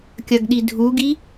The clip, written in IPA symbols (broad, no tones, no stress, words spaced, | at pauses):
kʲɐɡɗidʱuɡi